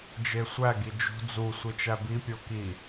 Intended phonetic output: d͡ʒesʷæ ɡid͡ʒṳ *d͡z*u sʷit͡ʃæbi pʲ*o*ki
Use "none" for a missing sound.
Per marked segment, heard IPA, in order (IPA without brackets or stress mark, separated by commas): d͡z, o